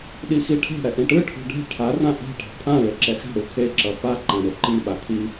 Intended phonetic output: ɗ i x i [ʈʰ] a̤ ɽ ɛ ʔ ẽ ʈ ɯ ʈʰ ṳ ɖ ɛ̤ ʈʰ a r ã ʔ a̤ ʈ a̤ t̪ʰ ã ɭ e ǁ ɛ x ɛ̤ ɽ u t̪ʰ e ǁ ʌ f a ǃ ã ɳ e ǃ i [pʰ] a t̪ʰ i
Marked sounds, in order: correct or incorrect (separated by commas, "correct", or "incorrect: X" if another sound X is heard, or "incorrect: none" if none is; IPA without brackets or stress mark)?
correct, incorrect: ɓ